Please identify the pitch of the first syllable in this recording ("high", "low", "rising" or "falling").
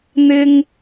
high